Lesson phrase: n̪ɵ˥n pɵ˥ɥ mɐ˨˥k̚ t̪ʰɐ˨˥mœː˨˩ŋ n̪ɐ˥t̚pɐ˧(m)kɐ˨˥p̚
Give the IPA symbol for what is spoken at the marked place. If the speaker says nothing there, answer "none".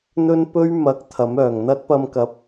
m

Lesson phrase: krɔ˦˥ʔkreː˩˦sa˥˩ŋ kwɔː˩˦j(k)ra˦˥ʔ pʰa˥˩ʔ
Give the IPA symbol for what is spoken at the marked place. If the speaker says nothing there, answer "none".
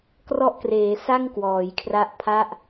kʰ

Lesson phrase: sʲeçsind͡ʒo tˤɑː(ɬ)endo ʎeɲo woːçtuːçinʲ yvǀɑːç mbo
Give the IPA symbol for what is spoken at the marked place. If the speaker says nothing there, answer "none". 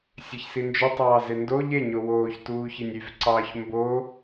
z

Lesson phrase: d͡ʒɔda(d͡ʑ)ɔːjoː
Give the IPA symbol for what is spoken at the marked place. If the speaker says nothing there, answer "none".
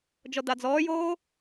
d͡z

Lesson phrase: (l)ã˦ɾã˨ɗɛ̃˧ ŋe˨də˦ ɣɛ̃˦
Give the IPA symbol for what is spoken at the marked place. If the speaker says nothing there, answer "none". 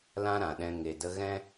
l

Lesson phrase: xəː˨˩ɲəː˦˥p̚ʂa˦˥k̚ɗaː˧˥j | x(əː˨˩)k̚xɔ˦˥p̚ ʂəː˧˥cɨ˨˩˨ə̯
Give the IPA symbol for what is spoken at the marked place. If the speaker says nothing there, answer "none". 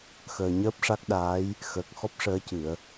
əː˨˩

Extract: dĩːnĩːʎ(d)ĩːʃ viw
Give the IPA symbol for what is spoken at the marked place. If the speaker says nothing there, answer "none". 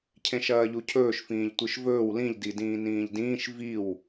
d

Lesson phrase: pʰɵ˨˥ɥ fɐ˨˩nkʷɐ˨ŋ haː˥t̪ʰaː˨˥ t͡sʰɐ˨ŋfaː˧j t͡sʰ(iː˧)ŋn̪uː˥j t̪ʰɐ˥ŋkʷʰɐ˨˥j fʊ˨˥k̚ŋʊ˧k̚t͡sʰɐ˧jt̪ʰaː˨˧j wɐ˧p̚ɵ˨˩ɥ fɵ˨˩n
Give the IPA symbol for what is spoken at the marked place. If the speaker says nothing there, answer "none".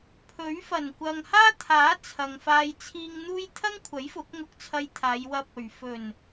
iː˧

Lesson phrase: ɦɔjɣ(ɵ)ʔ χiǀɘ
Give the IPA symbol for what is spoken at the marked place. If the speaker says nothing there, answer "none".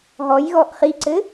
ɔ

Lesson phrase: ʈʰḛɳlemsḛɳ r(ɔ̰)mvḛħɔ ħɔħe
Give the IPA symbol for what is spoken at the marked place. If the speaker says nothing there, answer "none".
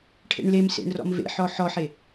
ɔ̰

